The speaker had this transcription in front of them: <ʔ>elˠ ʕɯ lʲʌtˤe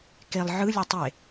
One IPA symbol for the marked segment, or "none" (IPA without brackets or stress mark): k